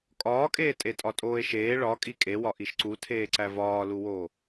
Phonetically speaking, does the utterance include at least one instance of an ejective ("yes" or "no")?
yes